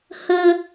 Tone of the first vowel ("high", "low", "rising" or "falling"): high